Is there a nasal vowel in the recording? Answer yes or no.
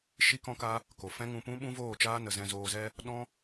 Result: yes